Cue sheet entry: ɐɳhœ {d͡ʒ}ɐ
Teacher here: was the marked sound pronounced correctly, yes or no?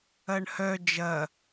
yes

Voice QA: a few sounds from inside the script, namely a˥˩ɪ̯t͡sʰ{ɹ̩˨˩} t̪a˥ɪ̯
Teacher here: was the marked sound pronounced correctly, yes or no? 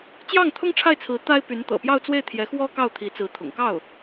no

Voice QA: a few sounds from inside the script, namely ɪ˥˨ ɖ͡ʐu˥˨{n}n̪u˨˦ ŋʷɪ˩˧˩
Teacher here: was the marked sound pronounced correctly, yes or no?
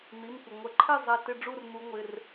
no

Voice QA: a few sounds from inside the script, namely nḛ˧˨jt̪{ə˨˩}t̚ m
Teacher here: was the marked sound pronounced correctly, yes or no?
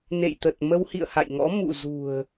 yes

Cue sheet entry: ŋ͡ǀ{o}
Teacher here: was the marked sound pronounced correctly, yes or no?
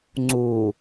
no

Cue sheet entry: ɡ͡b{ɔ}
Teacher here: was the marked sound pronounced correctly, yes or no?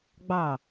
no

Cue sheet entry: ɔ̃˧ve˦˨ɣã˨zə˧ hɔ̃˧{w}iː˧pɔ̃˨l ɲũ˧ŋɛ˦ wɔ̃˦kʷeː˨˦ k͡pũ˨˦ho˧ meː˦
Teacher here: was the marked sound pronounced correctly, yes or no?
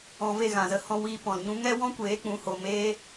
yes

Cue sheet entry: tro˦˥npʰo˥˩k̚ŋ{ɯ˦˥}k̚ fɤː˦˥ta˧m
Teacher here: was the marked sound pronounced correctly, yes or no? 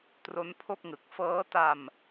no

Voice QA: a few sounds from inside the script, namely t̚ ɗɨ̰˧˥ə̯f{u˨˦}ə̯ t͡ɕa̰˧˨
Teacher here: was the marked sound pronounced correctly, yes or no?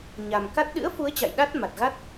yes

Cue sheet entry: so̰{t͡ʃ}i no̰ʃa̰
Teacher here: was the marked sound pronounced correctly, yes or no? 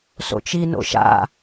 yes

